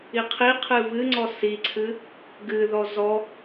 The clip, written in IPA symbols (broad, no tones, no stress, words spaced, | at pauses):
iqʰiqʰɨ βɨŋ͡ǀɔ siǀʰɨ | ɡɨðɔ zɔ